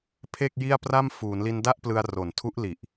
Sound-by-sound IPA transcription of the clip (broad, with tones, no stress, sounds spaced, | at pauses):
pʰ e˥˩ k̚ j i˥˩ a̯ p r a˥˩ m f uː˩˦ n l i˧ n d a˥˩ ʔ p l ɯ˧ a̯ r o˨˩ n tʰ u˦˥ ʔ l i˨˩ ʔ